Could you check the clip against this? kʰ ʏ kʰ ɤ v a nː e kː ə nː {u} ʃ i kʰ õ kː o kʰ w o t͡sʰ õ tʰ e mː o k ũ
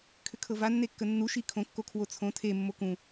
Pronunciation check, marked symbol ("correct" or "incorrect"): correct